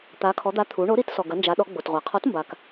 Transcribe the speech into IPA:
t̪ a˩˧ kʰ ɔ˩˧ d̪ a˨˥ t̪ʰ u˩˧ ɳ o˨˥ ɾ i˨˥ t s ɔ˩ ɡ ɐ˩˧ n d͡ʒ a˩˧ ɗ ɔ˩˧ ɡ͡b o˩ t ʁʷ a˩ qʰ ɔ˨˥ t m b a˩ k

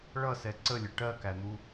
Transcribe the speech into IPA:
ɭ ʌ s ɛ ǀ ə lʲ ə ʈ ɜ k æ n̪ u

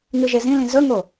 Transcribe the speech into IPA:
ŋ ɨ ʒ e z ĩ l ĩ z ɵ ŋ o

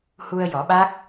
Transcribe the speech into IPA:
h u˧ ə̯ j ɔ˨˩˦ ɓ a˦˥ k̚

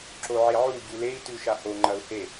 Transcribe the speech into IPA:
ǁ o ʕ e ʕ u ɟ u l e i̯ t ʉ ʃ a h o ŋ͡ǃ ɐ u̯ h e

